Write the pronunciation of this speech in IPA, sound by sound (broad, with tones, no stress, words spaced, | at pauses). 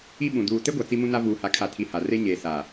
i˦ɓũ˨ duː˨ te˦ɡʷa˨ t͡si˦mũ˦na˦ vuː˨ha˨ kʰa˨tʰi˨ ha˨re˦ ɲeː˨ saː˨